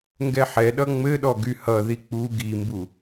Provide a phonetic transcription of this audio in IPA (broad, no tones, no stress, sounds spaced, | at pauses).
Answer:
ŋ ɡ ɛ ħ ɛ ɗ ʌ ŋ͡m ɘ ɗ ɔ ɡ y h ʌ ð i k͡p u ɡ i m b u